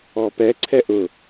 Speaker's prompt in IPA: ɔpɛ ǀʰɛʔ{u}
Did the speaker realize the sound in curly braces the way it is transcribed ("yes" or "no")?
no